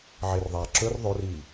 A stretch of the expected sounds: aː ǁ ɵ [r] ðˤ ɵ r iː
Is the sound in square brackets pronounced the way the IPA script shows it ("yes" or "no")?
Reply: yes